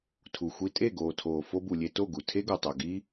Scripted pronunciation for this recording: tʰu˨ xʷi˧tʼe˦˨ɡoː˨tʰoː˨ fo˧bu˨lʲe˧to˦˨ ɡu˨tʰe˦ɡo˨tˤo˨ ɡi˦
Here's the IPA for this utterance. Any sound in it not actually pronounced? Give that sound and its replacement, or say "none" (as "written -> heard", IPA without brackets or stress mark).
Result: none